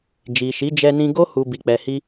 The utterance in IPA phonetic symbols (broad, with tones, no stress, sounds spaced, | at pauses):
d͡ʒ i˨ ʃ i˨˦ d͡ʒ ɛ˧ n ĩ˧ ɡ o˦ h u˧ b i˨ k͡p ɛ˨ h i˧